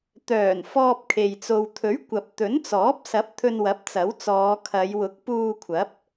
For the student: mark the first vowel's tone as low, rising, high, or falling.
low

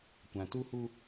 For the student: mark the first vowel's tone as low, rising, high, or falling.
low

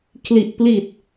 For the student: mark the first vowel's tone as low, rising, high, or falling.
low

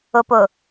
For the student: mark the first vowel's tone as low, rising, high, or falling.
low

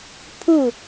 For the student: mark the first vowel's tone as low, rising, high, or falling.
falling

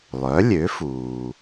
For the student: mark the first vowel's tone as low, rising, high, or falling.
rising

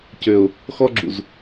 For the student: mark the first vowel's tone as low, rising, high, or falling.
low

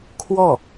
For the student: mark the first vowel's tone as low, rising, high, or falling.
falling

